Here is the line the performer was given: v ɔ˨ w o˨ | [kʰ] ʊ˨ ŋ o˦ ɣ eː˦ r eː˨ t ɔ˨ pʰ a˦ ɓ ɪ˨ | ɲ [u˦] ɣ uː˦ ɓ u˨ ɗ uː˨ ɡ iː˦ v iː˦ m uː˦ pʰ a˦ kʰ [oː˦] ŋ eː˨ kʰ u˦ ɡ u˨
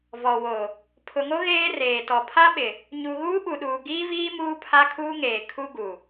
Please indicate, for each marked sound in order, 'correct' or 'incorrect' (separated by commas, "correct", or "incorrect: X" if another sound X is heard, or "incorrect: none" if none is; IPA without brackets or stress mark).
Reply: incorrect: pʰ, incorrect: u˨, incorrect: uː˦